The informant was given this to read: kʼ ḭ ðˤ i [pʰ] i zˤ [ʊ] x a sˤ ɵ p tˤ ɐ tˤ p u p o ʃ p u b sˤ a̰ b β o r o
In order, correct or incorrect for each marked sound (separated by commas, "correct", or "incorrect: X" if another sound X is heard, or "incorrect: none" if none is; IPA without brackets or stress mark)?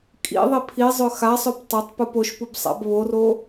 correct, incorrect: ɵ